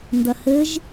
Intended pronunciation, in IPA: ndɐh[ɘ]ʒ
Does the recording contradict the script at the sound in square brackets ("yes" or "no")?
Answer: no